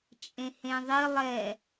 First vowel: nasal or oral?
nasal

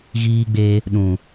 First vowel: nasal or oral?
oral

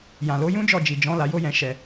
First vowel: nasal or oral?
nasal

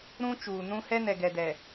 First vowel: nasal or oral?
nasal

